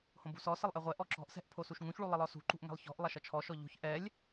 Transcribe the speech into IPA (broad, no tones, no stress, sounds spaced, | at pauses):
h õ b ṳ s ɔ s ə lˠ ʔ ɛ ʁʷ ɛ ʔ ɔ ǁ ɔ̤ ʔ s ɛ̤ ʔ pʰ o s u ʃ ŋ ũ ç ɭ u lˠ ə lˠ ɔ s ṳ ǃ ṳ ʔ ŋ ɛ̤ lˠ ç ɔ̤ ʔ lˠ ɐ ʃ ʌ t͡ʃʰ ɔ ʃ ɔ ʎ o̤ ç ʔ ɛ lʲ